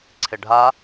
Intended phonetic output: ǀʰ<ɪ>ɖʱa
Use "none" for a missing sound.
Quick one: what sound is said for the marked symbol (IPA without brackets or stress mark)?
ɪ